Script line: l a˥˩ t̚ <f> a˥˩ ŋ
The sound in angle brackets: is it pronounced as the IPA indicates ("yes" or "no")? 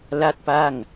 no